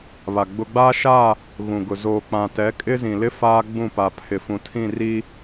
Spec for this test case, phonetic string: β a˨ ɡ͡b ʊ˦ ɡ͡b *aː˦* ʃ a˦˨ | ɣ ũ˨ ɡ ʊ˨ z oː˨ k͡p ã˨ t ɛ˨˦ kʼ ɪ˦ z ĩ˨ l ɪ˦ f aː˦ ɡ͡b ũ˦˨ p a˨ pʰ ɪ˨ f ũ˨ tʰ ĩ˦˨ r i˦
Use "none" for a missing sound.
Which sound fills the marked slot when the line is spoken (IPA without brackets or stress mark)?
aː˦